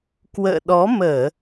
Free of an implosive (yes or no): no